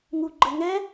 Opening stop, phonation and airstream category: click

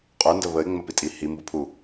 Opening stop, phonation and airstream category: ejective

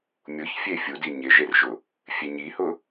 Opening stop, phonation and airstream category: plain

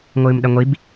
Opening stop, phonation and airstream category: implosive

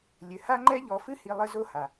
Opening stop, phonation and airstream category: click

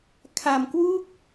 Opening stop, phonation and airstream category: aspirated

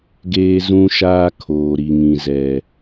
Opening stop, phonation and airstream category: plain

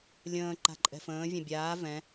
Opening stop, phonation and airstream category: click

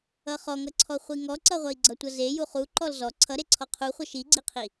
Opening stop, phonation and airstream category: click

